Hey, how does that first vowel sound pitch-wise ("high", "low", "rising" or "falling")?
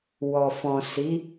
low